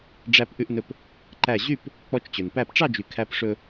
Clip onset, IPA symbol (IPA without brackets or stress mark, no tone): ɖ͡ʐ